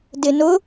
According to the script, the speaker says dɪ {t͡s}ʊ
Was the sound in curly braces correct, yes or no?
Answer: no